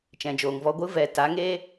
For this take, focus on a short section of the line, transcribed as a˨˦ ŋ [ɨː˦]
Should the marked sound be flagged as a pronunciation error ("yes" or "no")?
yes